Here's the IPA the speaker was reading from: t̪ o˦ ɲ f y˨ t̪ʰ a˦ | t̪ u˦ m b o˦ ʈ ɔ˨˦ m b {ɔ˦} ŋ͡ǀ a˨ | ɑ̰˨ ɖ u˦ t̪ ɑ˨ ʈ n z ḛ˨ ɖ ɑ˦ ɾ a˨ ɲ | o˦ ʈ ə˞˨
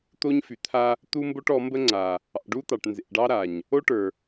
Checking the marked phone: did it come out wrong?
yes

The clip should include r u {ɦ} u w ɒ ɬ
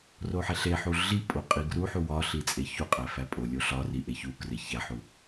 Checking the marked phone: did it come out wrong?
yes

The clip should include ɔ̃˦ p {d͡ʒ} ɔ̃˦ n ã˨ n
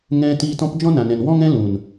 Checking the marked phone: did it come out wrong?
no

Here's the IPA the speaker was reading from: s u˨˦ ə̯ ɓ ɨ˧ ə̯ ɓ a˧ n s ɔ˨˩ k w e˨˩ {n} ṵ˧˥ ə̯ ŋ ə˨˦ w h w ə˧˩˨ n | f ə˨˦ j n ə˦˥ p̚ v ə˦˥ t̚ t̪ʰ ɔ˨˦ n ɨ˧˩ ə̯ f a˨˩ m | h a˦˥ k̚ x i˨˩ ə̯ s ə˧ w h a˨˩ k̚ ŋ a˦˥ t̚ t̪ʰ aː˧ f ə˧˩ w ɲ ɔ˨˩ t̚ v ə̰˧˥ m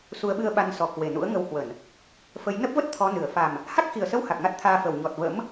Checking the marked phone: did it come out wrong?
no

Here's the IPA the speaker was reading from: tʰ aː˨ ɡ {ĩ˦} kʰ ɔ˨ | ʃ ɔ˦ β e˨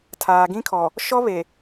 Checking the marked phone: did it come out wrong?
no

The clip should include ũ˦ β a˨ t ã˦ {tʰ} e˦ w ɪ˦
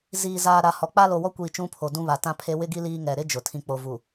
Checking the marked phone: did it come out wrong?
yes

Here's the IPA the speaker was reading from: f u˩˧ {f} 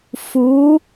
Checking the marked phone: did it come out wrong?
yes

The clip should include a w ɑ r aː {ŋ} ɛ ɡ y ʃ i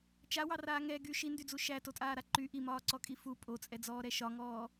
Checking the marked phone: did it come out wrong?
no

